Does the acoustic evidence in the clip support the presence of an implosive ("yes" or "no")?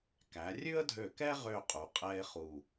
no